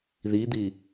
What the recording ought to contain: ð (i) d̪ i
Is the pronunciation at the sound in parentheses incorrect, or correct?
correct